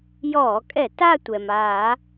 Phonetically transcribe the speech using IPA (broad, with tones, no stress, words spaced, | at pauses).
jɔː˧˩˧kʼɛ˧˩˧ ta˥˧tʷɛ˩maː˧˩˧